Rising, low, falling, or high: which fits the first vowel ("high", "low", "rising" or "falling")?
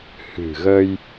low